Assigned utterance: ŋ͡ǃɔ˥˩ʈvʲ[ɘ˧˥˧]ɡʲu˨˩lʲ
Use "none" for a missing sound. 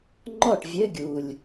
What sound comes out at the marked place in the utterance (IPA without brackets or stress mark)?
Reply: ɘ˧˥˧